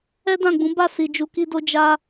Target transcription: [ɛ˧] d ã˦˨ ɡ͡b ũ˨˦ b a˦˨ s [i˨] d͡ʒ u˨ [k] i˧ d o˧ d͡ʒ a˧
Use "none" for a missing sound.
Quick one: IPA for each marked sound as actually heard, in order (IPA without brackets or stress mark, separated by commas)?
ɛ˦, i˨, k